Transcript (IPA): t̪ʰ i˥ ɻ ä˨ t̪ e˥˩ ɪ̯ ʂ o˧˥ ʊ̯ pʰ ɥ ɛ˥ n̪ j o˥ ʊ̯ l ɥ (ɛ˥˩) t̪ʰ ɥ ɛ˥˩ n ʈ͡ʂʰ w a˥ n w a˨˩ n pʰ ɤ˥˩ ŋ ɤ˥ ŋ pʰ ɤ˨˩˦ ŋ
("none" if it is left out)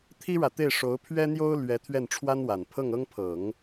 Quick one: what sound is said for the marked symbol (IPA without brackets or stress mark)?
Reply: ɛ˧˥